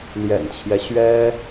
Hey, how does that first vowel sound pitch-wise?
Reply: low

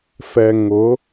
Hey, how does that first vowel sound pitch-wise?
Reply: low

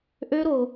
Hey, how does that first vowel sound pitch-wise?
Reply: high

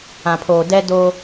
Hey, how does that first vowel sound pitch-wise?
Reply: low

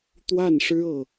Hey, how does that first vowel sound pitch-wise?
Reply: falling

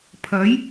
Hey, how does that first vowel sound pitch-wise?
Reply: rising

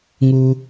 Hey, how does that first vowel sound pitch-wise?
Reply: low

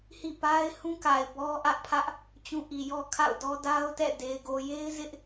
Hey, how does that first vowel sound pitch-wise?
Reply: falling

